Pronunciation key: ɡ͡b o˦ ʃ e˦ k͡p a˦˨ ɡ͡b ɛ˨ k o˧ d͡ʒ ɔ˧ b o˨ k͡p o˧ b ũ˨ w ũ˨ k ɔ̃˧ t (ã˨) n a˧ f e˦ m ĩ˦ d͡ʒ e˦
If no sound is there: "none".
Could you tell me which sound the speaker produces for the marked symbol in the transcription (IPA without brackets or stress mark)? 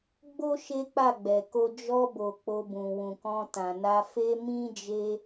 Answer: ã˨